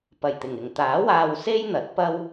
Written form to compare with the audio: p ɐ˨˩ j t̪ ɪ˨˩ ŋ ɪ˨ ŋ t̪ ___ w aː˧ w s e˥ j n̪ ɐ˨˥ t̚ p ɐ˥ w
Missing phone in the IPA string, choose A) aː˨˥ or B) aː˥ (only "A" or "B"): A